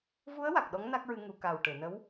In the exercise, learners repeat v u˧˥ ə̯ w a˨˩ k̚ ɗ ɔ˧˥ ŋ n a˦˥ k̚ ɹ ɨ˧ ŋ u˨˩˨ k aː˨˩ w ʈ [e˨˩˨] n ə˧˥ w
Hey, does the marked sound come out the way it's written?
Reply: yes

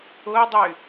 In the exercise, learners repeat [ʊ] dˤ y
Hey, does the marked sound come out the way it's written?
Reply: yes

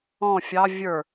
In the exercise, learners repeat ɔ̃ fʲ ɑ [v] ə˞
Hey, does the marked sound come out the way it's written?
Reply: no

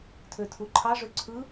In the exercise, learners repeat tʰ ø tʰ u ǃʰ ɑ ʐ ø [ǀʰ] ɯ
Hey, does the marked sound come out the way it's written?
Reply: yes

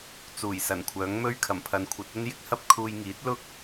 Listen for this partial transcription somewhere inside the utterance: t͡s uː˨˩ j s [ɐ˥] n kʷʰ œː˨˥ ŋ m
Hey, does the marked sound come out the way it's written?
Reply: no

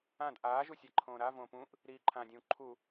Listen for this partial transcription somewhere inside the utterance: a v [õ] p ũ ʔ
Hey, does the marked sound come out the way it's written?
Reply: no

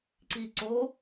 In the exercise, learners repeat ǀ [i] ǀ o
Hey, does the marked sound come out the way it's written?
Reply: yes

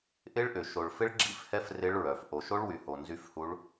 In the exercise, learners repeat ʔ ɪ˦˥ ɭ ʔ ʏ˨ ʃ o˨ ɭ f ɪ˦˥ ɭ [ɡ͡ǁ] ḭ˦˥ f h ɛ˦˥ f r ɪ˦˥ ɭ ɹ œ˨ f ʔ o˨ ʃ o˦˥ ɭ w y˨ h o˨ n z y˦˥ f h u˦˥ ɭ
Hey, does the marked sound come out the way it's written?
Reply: yes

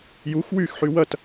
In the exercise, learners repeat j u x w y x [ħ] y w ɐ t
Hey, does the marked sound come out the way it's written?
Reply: yes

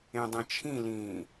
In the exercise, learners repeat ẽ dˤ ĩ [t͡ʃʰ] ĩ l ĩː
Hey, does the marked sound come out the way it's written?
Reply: yes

